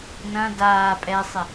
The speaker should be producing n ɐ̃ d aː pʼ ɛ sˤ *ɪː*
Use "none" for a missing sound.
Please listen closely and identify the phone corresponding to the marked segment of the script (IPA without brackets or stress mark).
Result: ɪ